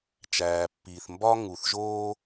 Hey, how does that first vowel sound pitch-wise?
low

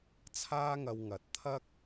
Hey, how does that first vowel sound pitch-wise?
high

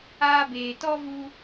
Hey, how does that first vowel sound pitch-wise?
high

